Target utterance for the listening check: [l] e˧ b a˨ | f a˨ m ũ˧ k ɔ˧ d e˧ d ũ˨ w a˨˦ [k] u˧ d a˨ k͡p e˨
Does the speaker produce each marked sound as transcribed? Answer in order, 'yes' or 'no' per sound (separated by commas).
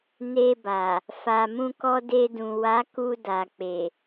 no, yes